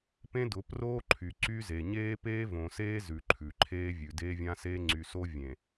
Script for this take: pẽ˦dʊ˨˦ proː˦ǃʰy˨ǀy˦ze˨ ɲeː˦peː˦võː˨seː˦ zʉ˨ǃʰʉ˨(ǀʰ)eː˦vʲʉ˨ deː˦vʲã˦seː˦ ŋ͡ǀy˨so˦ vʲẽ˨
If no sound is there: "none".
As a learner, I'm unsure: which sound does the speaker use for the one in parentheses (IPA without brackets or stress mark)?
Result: ǃʰ